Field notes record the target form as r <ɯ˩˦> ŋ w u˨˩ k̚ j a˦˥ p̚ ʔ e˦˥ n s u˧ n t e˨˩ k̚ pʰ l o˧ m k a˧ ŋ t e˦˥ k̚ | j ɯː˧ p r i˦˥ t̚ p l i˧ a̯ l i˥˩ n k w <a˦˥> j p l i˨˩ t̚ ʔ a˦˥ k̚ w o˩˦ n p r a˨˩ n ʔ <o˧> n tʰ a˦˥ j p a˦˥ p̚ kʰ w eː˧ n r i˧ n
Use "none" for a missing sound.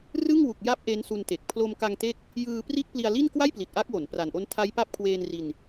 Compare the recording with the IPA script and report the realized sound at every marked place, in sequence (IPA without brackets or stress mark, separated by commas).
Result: ɯ˥˩, a˥˩, o˦˥